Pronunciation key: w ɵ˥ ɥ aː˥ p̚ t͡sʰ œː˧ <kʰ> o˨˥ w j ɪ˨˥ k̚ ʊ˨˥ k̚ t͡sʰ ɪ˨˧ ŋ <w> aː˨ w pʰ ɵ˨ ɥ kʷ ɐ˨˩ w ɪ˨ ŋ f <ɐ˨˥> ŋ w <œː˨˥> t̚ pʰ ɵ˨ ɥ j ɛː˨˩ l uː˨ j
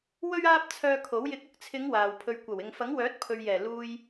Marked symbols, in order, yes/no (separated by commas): yes, yes, yes, yes